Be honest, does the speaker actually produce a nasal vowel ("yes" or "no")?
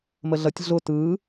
no